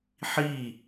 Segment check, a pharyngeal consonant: present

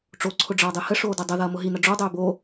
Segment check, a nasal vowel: absent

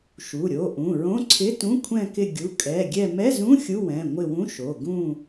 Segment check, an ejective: present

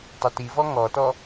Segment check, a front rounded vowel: absent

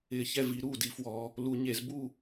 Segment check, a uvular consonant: absent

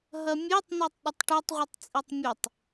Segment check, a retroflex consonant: present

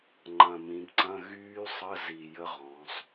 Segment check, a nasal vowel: present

